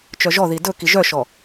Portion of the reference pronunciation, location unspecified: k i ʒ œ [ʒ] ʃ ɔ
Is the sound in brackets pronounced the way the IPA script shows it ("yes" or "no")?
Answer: no